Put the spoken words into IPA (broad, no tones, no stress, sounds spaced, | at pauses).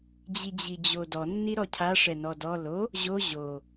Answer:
d͡ʑ i d͡ʑ i d͡ʑ o d ɔ nː i ɾ ɔ cʰ a ʂ ɛ n ɔ d ɔ l o | ʑ o ʑ o